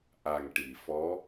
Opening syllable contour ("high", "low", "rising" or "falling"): low